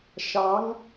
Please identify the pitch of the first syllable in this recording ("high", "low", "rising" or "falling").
rising